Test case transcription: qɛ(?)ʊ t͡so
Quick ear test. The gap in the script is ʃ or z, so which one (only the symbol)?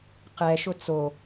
ʃ